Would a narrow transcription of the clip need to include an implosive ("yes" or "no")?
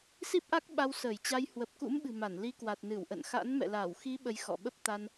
yes